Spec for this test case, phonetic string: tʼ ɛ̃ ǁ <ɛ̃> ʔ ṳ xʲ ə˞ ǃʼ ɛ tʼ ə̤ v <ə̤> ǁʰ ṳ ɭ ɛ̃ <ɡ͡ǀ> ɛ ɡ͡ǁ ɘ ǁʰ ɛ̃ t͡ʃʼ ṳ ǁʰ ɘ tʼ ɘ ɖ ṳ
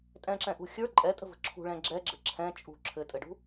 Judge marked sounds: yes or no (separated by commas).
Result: yes, yes, no